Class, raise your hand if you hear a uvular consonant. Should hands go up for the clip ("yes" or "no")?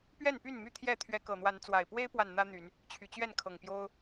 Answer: no